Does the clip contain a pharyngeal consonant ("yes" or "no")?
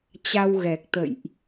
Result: no